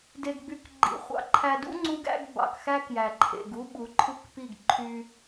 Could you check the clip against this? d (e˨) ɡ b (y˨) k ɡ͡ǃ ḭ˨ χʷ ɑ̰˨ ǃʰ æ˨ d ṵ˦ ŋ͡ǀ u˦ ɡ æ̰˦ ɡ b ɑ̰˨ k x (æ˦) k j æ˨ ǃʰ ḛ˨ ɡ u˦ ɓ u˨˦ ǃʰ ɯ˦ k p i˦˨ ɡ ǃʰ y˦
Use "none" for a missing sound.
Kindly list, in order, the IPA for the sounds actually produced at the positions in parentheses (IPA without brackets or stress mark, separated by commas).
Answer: e˨, y˨, æ˦